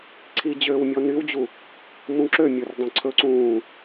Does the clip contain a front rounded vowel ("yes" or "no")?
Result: yes